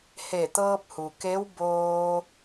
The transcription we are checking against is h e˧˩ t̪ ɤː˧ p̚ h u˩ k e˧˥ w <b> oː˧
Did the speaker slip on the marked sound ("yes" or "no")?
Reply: no